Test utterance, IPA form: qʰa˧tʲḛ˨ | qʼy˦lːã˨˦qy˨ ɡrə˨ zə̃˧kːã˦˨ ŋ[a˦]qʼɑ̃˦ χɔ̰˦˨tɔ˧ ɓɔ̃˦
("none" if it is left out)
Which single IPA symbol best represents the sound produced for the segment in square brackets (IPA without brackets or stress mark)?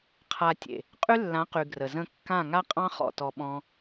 a˦